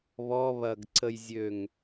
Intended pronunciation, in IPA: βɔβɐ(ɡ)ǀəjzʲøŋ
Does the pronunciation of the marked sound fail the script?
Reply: no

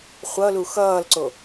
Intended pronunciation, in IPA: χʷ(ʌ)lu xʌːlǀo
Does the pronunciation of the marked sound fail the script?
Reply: no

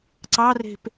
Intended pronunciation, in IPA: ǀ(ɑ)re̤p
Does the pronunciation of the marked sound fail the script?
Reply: no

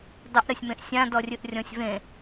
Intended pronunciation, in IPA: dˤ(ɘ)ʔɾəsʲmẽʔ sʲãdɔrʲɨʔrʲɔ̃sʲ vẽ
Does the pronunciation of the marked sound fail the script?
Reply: no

